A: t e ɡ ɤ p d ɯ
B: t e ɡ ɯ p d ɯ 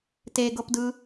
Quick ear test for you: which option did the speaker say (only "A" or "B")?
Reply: A